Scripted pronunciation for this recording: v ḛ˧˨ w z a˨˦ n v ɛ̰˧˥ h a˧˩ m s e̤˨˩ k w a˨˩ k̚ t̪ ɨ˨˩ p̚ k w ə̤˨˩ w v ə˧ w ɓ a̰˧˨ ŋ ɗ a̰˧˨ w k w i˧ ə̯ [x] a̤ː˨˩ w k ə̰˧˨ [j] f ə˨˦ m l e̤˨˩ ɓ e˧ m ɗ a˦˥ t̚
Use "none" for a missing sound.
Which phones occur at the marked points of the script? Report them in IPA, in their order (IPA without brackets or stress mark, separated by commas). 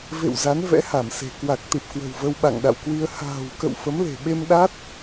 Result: h, w